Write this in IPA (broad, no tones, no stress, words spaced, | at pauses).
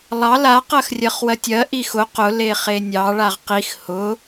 lˠɑ la qɜxrʲɜχwɜtʲɜ ʔixʊ qʊ leχenʲɑ ɭaʁqix hʊ